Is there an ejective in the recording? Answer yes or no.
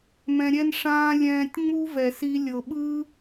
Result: no